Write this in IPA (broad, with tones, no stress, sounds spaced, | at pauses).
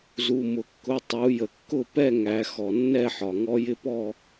z u˩˧˩ m ʊ˩ kː ʊ˩˧˩ tˤ u˩˧ j ə˩ kː ʊ˥˨ p ɛ˥˨ ŋ æ˩˧ x ɔ˩ nː ɛ˥˨ ħ ɒ˩ ŋ ɔ˧˥ j ɪ˧˥ p ɔ˥˨